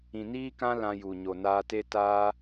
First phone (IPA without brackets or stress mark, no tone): ĩ